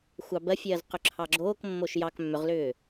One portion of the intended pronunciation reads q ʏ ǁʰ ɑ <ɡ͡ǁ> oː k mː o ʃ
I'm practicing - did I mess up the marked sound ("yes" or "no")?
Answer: no